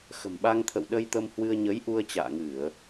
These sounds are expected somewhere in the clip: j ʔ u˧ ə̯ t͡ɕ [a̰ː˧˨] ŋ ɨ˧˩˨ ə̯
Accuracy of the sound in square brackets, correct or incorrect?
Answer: correct